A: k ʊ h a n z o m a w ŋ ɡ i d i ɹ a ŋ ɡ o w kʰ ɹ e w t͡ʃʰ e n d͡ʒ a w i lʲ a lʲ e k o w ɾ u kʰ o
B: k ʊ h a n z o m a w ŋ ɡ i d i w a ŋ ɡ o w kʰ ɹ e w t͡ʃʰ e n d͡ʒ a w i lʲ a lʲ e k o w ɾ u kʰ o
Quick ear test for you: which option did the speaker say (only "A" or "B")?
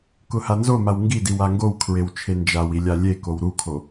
B